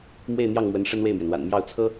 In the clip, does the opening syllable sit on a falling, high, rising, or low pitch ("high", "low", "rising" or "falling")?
falling